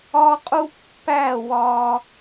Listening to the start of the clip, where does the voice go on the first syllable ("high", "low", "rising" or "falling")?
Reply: high